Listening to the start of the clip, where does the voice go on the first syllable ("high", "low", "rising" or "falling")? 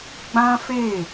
high